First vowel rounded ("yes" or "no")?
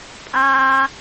no